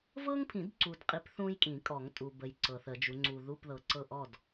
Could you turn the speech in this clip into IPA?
v ɤ˥ ŋ pʰ ĩ˨˩˦ d ǀ u˨ d qʼ i˨˦ p θ ũ˥ j kʼ ĩ˨˩˦ kʼ ɔ˨˩˦ ŋ tʼ u˨ b ə˨ j ǀ ɤ˨ θ ə˨˩˦ d͡ʒ u˨˦ ŋ͡ǀ u˨ ð u˧˥˧ p ð ɤ˨ ǀ ɤ˥˨ ʔ ɔ˥˨ d

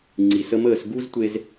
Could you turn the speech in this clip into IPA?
ŋ͡ǀ i˩ s ə˧ m əː˥˩ s ɡ u˥ z tʷ e˧ z

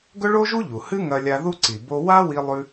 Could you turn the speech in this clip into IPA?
ɡ ɵ˥ ɭ o˥ ʒ u˥ ʎ u˩ h ɨ˥ ŋ ɐ˧ lʲ a˧ ð u˥ ǀ i˩ b o˧ w a˥ w i˧ lˠ ʉ˧

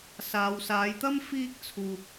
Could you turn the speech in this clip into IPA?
s aː˨ w s aː˨˧ j t̪ ɐ˥ m f iː˥ k̚ t͡sʰ uː˧ p̚

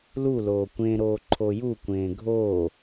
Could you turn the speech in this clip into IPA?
l u l oː kʷ ẽ ɾ oː ǃʰ o j u kʷ ẽː ɡʱ oː

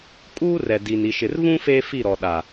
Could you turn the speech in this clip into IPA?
kʼ uː˦ r ɛ˨ d i˨ n i˨ ʃ ɪ˨ r v ũ˦ f eː˦ f i˦˨ ɾ ɔ˨ ɗ a˨

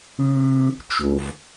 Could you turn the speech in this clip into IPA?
ɯː˥ | t͡ʃ o˩ v

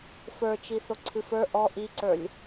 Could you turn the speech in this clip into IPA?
f ə˞ t͡ʃ i θ o ǀʰ ɨ f ə˞ ʔ ɔ ʔ i ǀ ə˞ lʲ

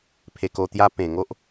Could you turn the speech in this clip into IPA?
pʰ e˧ k o˧ t̪ j a˦ p ẽ˨˩ ŋ o˦ ʔ

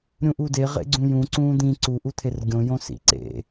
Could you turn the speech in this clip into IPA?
ɾʲ ũ ʔ u d e ʁ ḛ ɡ͡ǀ ũ j ũ ǀ ũː d̪ ĩ ǀ u ʔ u t̪ʰ e r ɡʲ õ j õ s ḭ ǀ ḛ

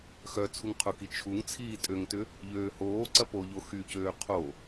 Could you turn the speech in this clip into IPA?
x œ t͡sʰ u ŋ qʰ ʊ k i t͡ʃʰ u ŋ t͡sʰ iː tʼ ø ŋ t ʏ | ʎ øː h oː ǀ ɐ p o ʎ o x y c øː qʰ o

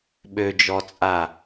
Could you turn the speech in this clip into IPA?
ɓ ø d͡ʒ ɔ t͡sʼ a

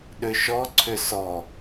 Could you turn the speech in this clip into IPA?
ɗ ʏ ʃ ɔ ǀʰ ʏ s ɔ

